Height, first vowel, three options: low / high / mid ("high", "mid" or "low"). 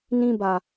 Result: high